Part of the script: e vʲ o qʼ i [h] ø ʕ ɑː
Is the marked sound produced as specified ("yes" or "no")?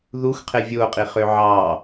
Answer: no